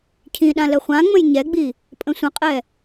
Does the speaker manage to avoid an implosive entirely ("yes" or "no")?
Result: no